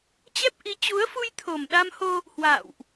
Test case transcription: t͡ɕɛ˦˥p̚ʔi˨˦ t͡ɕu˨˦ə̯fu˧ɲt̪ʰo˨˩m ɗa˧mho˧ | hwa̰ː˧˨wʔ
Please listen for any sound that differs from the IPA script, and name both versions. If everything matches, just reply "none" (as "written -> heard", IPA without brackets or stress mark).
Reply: ɲ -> j